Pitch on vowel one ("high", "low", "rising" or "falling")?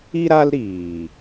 high